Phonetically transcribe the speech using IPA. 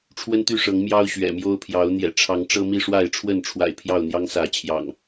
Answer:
ʈ͡ʂʰ w ə˦ n t̪ y˥˨ ʂ ɤ˨˦ ŋ m j ɑ˦ ʊ̯ ɕ ɥ ɛ̰˨˩ m j o˦ ʊ̯ pʰ j ɑ˨˦ ʊ̯ n̪ j ɛ̰˨˩ ʈ͡ʂʰ ɑ˨˦ ŋ ʈ͡ʂ ɤ˦ m i˥˨ ʂ w a˥˨ ɪ̯ ʈ͡ʂʰ w ə˥˨ n ʈ͡ʂʰ w a̰˨˩ ɪ̯ pʰ j ɑ˥˨ ʊ̯ n̪ j ɑ˦ ŋ s ä˨˦ t͡ɕʰ j ɑ̰˨˩ ŋ

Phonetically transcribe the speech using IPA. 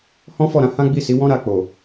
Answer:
h ɔ̃˦ f ɔ˦˨ ɾ ã˨˦ h ã˦ ɡ͡b i˦˨ s i˨˦ w ɔ̃˦ ɾ a˧ k͡p o˨

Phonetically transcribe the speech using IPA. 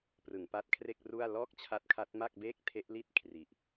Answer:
p r ɯ˩˦ ŋ p a˦˥ t̚ kʰ r e˥˩ k̚ r u˥˩ a̯ l ɔː˥˩ k̚ t͡ɕʰ a˦˥ t̚ kʰ a˦˥ t̚ m a˥˩ k̚ b eː˥˩ k̚ tʰ e˦˥ ʔ l i˥˩ t̚ kʰ r i˨˩ ʔ

